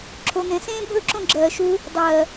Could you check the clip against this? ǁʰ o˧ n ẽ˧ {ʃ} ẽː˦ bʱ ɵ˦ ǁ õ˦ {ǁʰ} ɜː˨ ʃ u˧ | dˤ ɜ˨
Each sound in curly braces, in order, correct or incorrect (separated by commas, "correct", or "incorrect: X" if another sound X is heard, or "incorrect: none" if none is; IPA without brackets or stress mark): incorrect: s, incorrect: ɡ͡ǁ